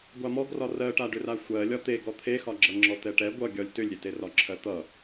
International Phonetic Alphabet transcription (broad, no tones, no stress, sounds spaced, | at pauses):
ɡʷ a m ɔ ɡ r ɒ r ɜ ʈ a ɖ ʏ r a xʷ ɜ lʲ ɒ t̪ e ɡ ɔ t̪ʰ e x ɒ ɡ͡ǁ ʌ ŋ͡ǁ ɔ t̪ ɛ ʈ ɛ ɡʷ ʌ ɡʲ ɒ lʲ t ʏ lʲ ɾʲ e t e r ɒ ǁʰ ɜ t̪ ʌ